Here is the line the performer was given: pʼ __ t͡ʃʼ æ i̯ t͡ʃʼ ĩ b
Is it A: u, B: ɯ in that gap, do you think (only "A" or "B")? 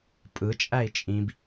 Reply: B